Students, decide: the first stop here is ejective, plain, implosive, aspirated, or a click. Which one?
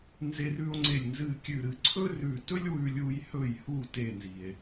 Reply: click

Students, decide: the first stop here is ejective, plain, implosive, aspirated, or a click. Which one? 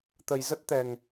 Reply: plain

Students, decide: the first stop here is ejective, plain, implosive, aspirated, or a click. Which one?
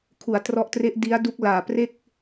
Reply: aspirated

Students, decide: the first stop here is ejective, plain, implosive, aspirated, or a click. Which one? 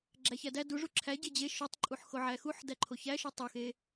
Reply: click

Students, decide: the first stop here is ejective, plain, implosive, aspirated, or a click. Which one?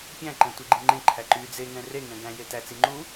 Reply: plain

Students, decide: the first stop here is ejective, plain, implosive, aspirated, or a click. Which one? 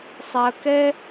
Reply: plain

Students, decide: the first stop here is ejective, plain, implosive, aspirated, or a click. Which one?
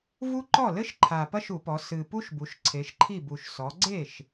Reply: click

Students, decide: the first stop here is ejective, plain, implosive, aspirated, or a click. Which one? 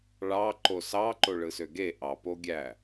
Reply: click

